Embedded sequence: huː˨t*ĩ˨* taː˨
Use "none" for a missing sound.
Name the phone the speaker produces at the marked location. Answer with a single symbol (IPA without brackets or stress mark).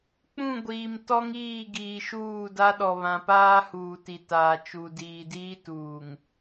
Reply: i˨